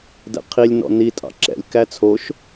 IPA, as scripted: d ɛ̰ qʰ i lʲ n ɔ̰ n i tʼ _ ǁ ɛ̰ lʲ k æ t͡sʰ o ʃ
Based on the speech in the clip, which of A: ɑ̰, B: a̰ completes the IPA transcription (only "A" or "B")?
A